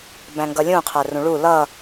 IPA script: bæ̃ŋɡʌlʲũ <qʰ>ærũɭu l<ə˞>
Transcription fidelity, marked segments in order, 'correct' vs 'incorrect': correct, incorrect

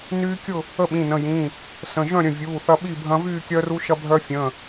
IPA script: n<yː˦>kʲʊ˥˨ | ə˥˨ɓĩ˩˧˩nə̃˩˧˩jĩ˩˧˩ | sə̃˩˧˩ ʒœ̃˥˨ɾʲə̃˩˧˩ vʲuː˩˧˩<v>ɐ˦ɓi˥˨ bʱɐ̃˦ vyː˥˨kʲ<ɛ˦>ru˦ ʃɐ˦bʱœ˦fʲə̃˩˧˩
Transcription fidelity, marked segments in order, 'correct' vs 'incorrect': correct, incorrect, incorrect

